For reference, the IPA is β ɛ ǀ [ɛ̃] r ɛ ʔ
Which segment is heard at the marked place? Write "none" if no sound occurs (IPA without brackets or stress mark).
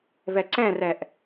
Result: ɛ̃